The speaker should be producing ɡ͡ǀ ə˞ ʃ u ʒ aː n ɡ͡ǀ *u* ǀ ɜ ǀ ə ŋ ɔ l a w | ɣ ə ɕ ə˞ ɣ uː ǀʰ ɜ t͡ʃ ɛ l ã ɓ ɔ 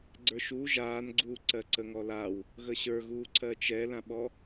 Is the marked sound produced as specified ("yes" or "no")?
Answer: no